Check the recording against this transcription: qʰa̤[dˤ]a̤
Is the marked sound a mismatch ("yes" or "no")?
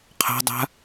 no